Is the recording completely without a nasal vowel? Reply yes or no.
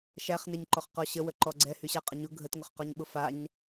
yes